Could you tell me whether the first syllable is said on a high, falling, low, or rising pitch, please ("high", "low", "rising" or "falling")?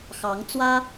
rising